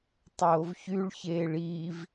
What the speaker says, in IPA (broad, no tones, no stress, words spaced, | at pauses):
tˤoːvçyɭ çeːɭiːv